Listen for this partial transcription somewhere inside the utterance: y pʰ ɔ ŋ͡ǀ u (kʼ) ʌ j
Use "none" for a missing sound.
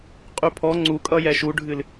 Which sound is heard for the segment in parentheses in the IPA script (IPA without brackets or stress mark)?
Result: kʼ